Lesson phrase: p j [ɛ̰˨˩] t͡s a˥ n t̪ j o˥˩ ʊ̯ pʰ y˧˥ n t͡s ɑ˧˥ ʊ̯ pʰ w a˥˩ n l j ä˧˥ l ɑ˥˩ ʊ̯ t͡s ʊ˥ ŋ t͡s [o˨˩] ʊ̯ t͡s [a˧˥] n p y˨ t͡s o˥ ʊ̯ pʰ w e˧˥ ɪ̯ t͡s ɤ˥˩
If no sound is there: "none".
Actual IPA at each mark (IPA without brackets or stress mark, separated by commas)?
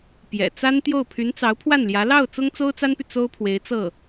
ɛ̰˨˩, o˥, a˥